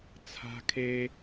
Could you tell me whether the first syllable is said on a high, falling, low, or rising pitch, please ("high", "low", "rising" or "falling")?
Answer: high